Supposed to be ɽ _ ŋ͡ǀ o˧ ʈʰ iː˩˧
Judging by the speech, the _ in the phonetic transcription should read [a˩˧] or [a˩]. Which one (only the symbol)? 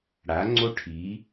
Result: a˩˧